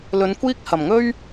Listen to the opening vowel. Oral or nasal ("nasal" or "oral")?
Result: oral